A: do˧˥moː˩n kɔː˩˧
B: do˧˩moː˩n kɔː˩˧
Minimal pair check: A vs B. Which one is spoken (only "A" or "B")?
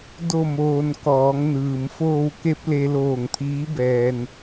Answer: B